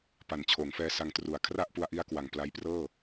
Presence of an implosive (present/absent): absent